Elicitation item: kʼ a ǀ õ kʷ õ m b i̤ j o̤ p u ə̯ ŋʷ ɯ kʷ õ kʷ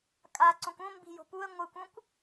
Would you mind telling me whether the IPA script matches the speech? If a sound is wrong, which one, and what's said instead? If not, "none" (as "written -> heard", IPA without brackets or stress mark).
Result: none